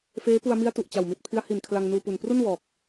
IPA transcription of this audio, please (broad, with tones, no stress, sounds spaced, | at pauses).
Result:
f eː˦˥ p u˧ a̯ m i˦˥ a̯ t u˨˩ ʔ t͡ɕ a˨˩ w m i˨˩ t̚ pʰ i˦˥ a̯ h i˨˩ n kʰ l a˧ ŋ n uː˧ p u˨˩ n p r u˥˩ n w ɔː˨˩ k̚